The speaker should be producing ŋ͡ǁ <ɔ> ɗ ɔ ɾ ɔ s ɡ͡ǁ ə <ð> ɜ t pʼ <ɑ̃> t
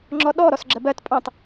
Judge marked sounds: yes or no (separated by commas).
yes, no, yes